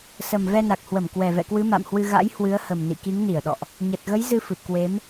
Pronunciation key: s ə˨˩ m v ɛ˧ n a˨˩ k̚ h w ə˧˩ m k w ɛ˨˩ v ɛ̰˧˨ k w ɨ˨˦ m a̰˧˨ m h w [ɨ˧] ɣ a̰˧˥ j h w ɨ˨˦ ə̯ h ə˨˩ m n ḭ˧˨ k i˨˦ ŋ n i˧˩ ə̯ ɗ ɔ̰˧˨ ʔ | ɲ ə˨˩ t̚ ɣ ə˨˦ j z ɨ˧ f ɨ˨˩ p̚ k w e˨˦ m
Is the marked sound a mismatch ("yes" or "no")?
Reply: no